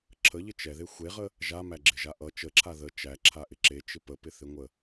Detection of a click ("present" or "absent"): present